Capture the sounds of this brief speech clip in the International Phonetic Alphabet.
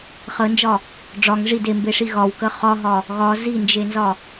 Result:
χənd͡ʒɒ | ɖ͡ʐɒŋ ʐid embeʂi ɣɒwkə χɒɦɒ | ɣɒ zind͡ʒenzɒ

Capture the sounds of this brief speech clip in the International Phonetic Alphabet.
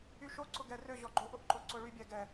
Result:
yʃo ǀʊɡɛrø ʑɔɡ͡ǃoʔ ʊʔǃoǀʊɭy bʲɛɡɛ

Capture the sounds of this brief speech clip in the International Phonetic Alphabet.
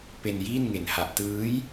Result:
pe˧njiː˥˩nŋe˨˩n ha˨˩ʔtɯː˦˥j

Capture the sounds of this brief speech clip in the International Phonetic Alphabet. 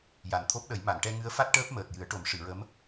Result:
ja˨˩nt̪ʰo˦˥p̚ɗə˨˩˦j ma˨˩˨nʈɛ˧ ŋɨ˧˥ə̯fa˦˥t̚ ʈəː˦˥p̚məː˨˩t̚jɨ˨˩˦ə̯ʈo˨˩˦m ʂɨ˨˩˨ɹə˧˥m

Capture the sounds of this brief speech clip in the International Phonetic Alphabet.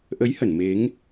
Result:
ʔə˨˦jhə˧˩n me˨˦ŋ

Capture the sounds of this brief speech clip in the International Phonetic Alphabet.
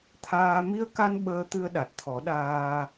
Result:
t̪ʰaː˧ mi˧ə̯ka˧n ɓəː˧t̪ɨ˧ə̯ ɗa˨˩t̚t̪ʰɔ˨˩˦ɗaː˧

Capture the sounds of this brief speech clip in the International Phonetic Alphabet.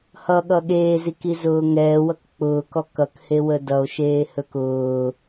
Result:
hʌɠʌ ɠeːzikizʊː ŋɛːwʌk k͡pʊːkɔ kʌkhewə dʌo̯ʃeːhɵk ʊː

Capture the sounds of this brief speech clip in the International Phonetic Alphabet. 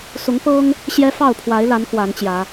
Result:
sʊ˨˦ŋpɤ˦ŋ | ɕjɛ˦ fɑ˥˨ʊ̯pʰwa˨˦ɪ̯la˨˦n kwa˨˦nt͡ɕjä˨˦

